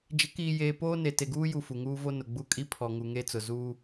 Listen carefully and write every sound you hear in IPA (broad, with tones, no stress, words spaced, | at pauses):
d͡ʒɪ˨˦kiː˨jeː˨ poː˦ne˨ te˨ɡuː˦ju˨ fu˨ŋuː˦vo˦nʊ˨ ɡ͡bu˦˨kʼi˦ pʰɔ˨ŋu˨ŋe˦t͡sʊ˨ zuː˦